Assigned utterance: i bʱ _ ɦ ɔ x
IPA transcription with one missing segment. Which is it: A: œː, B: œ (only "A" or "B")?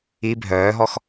A